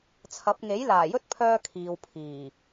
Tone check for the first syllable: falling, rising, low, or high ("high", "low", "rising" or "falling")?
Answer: rising